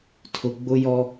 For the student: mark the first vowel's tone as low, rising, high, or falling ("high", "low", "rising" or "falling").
low